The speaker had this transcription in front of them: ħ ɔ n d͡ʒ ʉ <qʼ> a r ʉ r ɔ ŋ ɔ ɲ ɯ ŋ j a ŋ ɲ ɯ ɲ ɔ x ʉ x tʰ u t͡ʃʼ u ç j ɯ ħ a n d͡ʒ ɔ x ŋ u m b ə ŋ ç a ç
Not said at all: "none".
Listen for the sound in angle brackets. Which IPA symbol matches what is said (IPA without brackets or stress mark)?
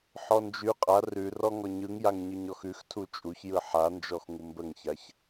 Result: qʼ